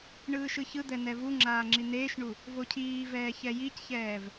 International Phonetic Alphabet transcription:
ɳ ɯː ʃ ɯ ç ɯ d̪ ɛ n̪ ɛ v u ŋ͡ǁ aː ŋ͡ǁ i n̪ eː ʃ ɳ u | v o cʰ iː v ɛː ç ɛ j i c ç ɛː v

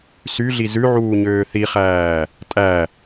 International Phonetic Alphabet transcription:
s y ɮ i z ʉ ʕ uː ɲ øː θ i χ æː | tʼ æ

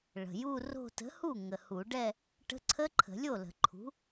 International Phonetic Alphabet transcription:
ɭ ə̤˨˩ j u˥˧ r o̤˥˧ t ə̤˨˥ h u˥˩ ŋ ə˨˩ h u˨˩˦ ɖ ɛ˥˧ | ʈ ə̤˦˥ ǀʰ ə˦˥ ǃʰ ə̤˨˩˦ lʲ o˥˩ l ə̤˨˩˦ ǃʰ ṳ˨˥

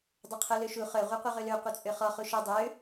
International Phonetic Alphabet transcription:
dˤ œ qʰ œ l ø ʃ u χ œ ʁʷ a qʷ œ ʁ ø l ø qʷ œ t͡sʼ ø χ ɔ χ u ʃ ɔ dˤ ø

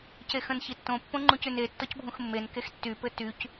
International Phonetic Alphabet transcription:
c e x ə̃ n ç i tː õ pː õ ŋ͡ǃ ũ c y n e tː ɔ c bʱ ũ x mː e n k e x tː y p ɘ t y c

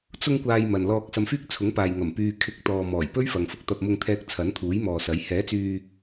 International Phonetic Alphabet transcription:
t͡s ʊ˧ ŋ kʷ aː˨ j m ɐ˨ n l ɔː˧ k̚ s ɐ˨ m f yː˧ k̚ t͡sʰ ʊ˨˥ ŋ p aː˨ j ŋ ɐ˨˩ m p yː˨ kʰ ɪ˨˥ k̚ t̪ ɔː˨ m ɔː˨˩ j p ɵ˥ ɥ f ɐ˨ ŋ f ʊ˧ k̚ t̪ ɐ˧ p̚ m ʊ˧ ŋ t̪ʰ ɛː˧ k̚ t͡sʰ ɐ˨˥ n t̪ʰ uː˨˥ j m ɔː˨ s ɐ˨˥ j h ɛː˨˥ t͡s yː˧

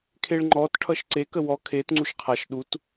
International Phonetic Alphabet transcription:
kʰ e ɭ ŋ͡ǃ ɔ t ʈʰ ʌ ʃ ǀ e k ə w ɔ kʰ e t ŋ͡ǀ u ʃ qʰ a ʃ ɗ u t

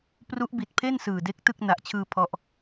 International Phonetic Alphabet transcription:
p r u˦˥ ʔ b i˨˩ t̚ pʰ e˥˩ n s ɯː˨˩ d e˦˥ k̚ t ɯ˥˩ k̚ n a˨˩ ʔ t͡ɕʰ ɯː˧ pʰ ɔ˥˩ ʔ

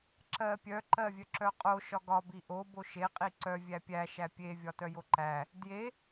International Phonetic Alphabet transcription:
ǁ ɜ pʲ œ ǃ ɜ vʲ œ ǁ œ qʼ o ʃ ɒ ɡ ɒ b i ʔ o b o ʃ e qʼ i ǀ œ vʲ æ pʲ æ ʃ æ pʲ e vʲ ɒ t œ j o ǃ æ | d j e

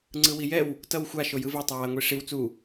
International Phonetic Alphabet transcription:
ŋ͡ǀ ɯ w i j ɛ w | t ʌ w xʷ a ʃ o j ɯ v ɛ tˤ a w a ŋʷ i ʂ i w t͡s u

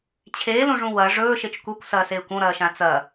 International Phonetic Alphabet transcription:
t͡ɕʰ eː l ũ ʐ ũ w ɐ ʐ ɵː ʃ e t͡ʃ kʷ e kʷ s ɐː s eː kʷ õ ɾ ɐː ʃ ã t͡s ɐ

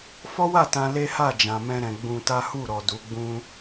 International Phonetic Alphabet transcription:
f ɔ˦ w a˦˨ t ã˧ l e˦ h a˦˨ d͡ʒ ã˨ m ɛ̃˧ ɾ ɛ̃˨ ɡ͡b ũ˧ t a˦ h u˦˨ ɾ ɔ˨ d u˨˦ ɡ͡b ũ˦

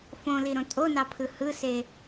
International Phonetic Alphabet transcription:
f õ l i ɾ õ tʼ o n ɑ pʰ ɯ h ɯ s e

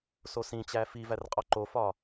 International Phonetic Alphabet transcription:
s o s ĩ t͡ɕ æ f i v æ r qʼ ɒ ǃ o f ɒ

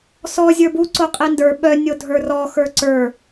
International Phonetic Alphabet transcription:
s ɔ zʲ ə˞ b u ǀ o qʼ i n d ə˞ ɓ œ nʲ o dʱ ə˞ r ɔ x ə˞ ǀ ə˞

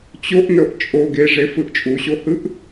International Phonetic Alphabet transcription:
t͡ɕ o ʔ n ɤ ʔ t͡ʃʼ o ɡ e ʐ e f ɯ ʔ t͡ʃʼ u ɕ o h ɯ ʔ

